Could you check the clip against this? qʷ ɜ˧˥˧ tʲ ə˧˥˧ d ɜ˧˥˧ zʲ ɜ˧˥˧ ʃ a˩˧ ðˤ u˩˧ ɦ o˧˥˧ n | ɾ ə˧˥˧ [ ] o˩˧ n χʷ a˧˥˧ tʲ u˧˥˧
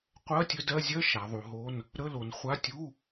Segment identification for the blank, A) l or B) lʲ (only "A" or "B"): A